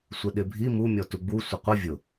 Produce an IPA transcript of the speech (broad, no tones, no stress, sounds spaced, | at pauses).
sʷ e ɗ ɪ bʱ i m u mʲ ɔ t u ɡ͡b u sʷ ə qʷ ɪ vʲ ʊ